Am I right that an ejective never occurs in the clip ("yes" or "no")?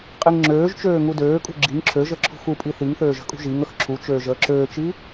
no